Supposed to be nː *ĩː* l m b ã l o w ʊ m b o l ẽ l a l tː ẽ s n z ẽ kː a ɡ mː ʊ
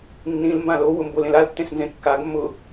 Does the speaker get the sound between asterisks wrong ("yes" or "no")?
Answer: yes